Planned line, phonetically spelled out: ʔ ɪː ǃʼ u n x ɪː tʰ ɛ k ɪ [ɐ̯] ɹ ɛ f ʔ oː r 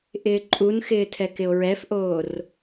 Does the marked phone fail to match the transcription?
yes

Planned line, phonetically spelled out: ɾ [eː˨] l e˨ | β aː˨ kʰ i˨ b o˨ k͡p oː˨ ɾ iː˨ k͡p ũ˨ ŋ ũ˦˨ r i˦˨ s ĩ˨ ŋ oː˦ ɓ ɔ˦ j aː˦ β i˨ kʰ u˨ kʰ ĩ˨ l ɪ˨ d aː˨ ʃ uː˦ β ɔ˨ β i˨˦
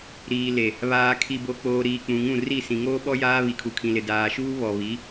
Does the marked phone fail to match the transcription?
yes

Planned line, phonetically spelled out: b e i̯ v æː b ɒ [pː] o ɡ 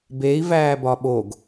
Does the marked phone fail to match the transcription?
yes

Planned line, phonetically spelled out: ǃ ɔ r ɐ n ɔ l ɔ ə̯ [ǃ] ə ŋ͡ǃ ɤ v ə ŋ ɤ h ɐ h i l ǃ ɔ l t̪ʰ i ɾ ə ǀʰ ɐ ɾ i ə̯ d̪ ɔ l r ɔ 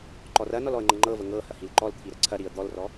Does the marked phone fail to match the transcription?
yes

